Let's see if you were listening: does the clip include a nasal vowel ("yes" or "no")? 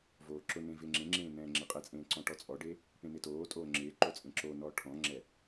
yes